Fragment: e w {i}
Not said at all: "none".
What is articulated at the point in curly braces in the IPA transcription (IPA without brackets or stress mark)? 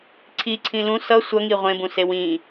ĩ